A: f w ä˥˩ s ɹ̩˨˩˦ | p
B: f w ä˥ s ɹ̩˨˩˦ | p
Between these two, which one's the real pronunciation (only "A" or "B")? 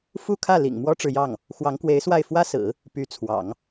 B